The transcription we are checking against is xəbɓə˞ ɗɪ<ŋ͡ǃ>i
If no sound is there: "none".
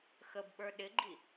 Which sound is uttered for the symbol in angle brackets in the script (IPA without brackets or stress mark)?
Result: ɡ͡ǃ